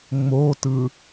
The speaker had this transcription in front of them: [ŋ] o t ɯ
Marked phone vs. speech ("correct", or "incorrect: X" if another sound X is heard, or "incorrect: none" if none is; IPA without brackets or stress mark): incorrect: ŋ͡m